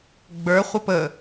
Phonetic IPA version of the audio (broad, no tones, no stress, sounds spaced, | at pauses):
ɡ͡b ə˞ χʷ ə p ə